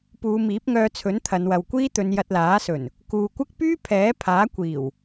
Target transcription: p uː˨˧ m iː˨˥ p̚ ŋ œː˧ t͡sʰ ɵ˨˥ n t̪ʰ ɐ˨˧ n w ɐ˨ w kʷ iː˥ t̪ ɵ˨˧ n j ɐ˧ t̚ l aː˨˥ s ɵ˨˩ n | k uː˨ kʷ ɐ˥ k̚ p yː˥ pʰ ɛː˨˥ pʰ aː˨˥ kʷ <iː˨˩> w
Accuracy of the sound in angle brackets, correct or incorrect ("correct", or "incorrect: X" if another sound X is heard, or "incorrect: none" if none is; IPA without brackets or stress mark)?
correct